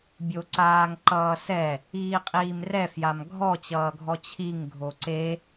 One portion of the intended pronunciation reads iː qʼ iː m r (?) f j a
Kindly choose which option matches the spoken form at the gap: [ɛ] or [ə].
ɛ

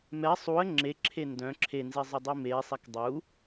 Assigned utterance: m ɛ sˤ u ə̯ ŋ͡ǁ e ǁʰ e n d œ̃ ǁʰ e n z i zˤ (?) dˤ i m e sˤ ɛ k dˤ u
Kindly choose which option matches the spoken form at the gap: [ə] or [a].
ə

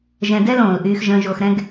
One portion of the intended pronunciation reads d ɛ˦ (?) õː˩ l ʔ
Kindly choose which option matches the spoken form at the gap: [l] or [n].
l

